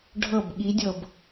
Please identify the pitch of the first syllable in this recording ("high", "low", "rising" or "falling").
falling